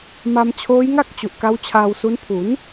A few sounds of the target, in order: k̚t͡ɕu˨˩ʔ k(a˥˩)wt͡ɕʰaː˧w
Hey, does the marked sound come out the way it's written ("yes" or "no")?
no